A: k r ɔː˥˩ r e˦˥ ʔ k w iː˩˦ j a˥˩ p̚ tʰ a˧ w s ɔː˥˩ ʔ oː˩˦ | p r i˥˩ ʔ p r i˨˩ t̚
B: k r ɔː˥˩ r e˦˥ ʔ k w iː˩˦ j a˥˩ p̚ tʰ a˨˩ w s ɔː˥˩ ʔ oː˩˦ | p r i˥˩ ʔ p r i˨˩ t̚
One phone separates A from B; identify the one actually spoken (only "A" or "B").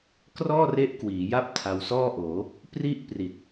A